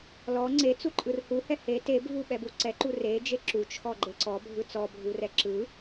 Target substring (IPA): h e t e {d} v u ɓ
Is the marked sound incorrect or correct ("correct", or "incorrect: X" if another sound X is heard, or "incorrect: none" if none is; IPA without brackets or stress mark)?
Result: incorrect: b